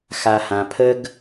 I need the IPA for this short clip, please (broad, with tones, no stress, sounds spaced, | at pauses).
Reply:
x a˨ h ã˨ pʰ ə˦ ɡ